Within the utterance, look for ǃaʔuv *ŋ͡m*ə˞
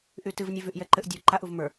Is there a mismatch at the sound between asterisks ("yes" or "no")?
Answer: yes